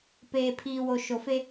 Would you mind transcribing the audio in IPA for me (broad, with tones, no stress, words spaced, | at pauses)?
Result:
peː˨pʰiː˨wo˨ ʃo˨fe˦